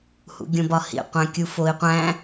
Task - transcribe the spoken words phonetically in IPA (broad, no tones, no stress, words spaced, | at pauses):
hṵɡʲõbɒhḭ qʷæ̃kʲufoi̯qʷæ̃